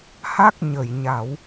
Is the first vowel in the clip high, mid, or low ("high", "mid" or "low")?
low